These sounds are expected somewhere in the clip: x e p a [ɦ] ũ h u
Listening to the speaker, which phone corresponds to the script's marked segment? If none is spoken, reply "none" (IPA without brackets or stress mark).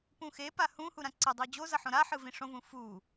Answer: h